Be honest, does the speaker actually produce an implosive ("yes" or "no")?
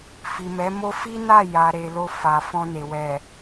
no